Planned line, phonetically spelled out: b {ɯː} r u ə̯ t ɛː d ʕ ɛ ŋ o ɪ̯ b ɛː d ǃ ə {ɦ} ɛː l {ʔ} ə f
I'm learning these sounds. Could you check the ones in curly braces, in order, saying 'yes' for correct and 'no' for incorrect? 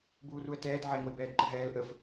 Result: no, yes, yes

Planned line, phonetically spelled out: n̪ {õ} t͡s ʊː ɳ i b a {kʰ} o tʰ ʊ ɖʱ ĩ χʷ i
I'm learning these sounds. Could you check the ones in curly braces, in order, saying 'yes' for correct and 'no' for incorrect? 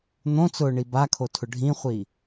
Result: yes, yes

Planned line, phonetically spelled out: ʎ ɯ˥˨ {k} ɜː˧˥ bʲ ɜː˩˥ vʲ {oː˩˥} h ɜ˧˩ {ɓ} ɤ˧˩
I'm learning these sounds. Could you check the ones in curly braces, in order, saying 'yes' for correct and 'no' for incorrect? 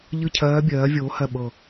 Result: no, yes, yes

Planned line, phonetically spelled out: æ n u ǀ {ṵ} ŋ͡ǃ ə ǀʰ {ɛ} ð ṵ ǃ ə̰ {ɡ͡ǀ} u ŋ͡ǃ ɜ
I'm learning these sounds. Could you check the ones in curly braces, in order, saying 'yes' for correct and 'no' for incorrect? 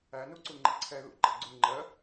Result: no, yes, yes

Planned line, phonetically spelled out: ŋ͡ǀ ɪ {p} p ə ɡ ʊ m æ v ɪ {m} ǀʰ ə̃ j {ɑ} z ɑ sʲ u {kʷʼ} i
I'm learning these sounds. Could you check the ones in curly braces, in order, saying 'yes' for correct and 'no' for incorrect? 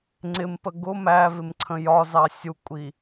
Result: no, yes, no, yes

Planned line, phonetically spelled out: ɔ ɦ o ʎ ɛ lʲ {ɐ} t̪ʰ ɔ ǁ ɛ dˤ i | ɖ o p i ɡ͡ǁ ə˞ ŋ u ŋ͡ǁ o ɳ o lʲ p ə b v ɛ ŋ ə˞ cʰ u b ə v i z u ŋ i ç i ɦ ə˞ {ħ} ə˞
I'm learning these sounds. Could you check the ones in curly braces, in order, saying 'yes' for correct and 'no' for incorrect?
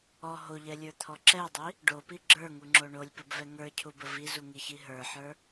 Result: no, yes

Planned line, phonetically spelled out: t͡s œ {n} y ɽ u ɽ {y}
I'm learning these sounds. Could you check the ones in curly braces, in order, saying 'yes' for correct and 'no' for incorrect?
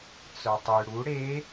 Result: no, no

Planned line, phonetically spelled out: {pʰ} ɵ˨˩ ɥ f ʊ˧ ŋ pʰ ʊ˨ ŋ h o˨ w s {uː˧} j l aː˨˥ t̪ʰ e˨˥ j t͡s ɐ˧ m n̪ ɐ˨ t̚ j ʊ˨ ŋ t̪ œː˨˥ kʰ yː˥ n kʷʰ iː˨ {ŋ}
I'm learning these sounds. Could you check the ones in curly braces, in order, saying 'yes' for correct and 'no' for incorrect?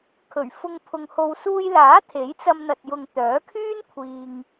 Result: no, yes, yes

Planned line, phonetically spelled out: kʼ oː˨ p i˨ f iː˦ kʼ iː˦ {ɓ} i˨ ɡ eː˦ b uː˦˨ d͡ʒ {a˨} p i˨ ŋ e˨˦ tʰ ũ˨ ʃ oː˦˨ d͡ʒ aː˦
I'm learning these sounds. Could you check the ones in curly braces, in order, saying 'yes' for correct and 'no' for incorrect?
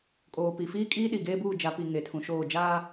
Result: no, yes

